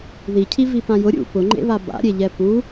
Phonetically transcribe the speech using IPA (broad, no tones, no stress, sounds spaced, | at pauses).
ð i cʰ i v i p ã j ʊ ɾʲ ṵ p ʊ ŋ͡ǃ ḛ β a b a̰ ɾʲ e ʎ ɛ p u